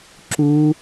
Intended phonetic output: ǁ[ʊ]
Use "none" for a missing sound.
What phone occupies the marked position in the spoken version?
u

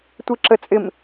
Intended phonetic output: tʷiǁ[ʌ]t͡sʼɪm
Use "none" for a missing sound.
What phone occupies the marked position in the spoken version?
ə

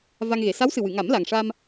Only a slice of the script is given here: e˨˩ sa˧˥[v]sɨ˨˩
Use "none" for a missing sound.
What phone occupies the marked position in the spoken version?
w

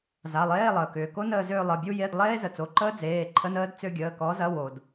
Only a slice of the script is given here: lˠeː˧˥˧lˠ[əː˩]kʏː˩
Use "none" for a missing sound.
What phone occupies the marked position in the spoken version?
əː˩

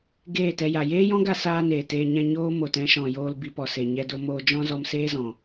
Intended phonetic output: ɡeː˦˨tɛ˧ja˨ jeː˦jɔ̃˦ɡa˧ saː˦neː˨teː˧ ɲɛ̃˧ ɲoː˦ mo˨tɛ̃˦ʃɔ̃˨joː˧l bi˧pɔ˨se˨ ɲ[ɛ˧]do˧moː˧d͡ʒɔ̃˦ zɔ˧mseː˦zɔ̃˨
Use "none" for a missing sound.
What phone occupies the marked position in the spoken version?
ɛ˧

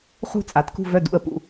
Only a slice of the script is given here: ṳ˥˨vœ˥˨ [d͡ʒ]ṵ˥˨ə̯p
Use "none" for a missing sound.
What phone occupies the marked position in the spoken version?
d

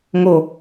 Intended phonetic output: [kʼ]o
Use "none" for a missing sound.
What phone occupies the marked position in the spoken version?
ŋ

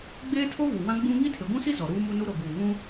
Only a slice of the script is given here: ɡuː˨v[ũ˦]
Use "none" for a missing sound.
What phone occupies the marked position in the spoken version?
ũ˦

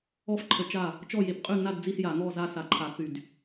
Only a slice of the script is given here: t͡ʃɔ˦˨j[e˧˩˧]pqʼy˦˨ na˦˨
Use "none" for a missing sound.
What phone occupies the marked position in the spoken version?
e˧˩˧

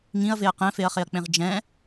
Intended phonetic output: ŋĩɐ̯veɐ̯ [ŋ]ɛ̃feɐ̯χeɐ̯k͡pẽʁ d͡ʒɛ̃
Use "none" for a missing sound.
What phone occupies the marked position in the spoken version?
q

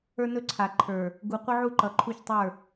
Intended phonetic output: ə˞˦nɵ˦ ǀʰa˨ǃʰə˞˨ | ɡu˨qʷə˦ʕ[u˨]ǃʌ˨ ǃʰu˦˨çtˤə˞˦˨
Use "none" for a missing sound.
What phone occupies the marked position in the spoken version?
u˦˨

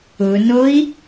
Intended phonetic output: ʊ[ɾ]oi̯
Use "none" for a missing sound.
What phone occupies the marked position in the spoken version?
n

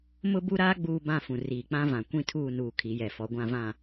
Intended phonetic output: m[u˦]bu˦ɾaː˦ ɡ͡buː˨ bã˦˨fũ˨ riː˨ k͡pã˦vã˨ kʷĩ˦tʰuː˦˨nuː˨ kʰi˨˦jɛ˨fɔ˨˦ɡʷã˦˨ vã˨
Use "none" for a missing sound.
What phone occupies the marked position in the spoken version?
ʊ˦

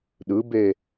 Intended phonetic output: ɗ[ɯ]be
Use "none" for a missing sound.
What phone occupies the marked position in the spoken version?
ɯ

